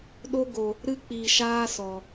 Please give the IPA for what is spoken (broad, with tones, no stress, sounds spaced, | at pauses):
ɗ o˦ ɡ o˧ | ɾ ɨ˦ k͡p iː˧ ʃ aː˦ s ɔ˧